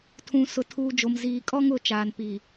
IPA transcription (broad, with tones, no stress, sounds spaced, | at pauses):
tʰ ũ˨ s ʊ˨ tʰ uː˨ d͡ʒ o˨ m z iː˨ kʼ ɔ˦ ŋ ʊ˨˦ t͡ʃ aː˨ n p i˨